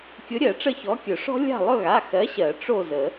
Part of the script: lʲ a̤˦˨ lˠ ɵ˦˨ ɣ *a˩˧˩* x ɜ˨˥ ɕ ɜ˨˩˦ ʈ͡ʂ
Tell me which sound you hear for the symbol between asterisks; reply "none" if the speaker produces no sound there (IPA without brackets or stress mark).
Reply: a˩˧˩